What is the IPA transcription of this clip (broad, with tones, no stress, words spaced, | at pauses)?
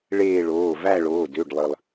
ɭeː˦˨ɭoː˩˧˩ væ˦˨ɭoː˩˧˩dø˩˧˩ɖlˠɯ˩lˠ